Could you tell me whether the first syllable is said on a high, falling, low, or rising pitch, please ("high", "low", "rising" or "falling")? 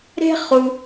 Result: high